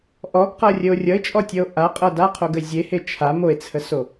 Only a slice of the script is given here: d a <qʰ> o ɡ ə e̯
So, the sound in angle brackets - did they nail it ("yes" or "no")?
yes